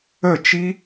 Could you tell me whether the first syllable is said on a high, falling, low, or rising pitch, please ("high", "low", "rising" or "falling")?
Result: falling